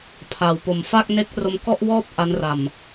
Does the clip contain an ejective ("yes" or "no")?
no